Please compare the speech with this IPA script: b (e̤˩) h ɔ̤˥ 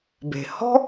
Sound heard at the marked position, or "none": e̤˩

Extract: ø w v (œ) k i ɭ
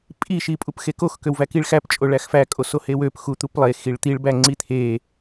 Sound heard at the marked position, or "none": æ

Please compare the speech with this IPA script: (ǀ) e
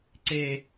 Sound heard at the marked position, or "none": ǀ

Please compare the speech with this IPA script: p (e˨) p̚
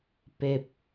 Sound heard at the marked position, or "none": e˨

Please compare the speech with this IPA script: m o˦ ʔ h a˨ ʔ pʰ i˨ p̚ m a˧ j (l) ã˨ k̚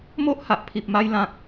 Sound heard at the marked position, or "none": l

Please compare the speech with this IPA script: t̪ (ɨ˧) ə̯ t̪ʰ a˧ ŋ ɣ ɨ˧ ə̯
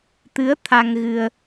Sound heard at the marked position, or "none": ɨ˧˥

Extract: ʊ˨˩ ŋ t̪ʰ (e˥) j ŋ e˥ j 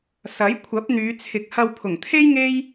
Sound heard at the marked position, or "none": e˥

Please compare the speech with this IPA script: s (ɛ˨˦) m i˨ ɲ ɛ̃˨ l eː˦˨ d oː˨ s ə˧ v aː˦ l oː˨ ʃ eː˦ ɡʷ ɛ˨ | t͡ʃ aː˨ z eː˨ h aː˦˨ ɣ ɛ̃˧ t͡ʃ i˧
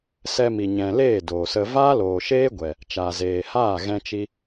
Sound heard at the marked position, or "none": ɛ˧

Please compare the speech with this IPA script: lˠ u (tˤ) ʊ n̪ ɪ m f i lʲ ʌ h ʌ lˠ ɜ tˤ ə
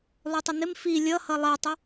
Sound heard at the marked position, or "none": tˤ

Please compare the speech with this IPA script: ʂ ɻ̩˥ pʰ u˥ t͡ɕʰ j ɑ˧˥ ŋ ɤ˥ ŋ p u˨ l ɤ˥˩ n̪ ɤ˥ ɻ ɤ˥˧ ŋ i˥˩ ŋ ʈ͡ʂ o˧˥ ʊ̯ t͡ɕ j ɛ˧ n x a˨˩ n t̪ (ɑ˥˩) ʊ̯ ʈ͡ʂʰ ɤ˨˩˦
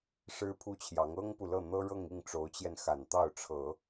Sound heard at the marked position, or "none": ɑ˥˩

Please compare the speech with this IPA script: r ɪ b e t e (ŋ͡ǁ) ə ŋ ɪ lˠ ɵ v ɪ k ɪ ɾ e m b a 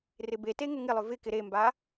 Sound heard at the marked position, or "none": ŋ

